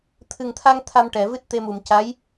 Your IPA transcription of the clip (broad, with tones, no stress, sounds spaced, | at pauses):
t̪ʰ ɨ˨˩ ŋ t̪ʰ a˧ ŋ t̪ʰ a˧ m ʈ ɛ˨˩˨ v ɨ˦˥ t̚ t̪ e˧ m u˨˩ m c a˧˥ j